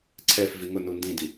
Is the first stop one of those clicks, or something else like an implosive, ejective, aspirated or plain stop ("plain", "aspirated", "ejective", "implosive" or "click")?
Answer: click